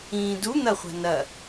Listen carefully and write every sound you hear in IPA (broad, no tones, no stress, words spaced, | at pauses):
ĩːdu n̪ɐχʷa̤ nɐ